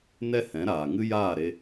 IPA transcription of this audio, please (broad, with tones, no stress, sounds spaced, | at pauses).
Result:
n ɛ˦ h ɛ̃˨˦ ɾ aː˨ ŋ ɨ˦ j aː˦˨ ɾ e˧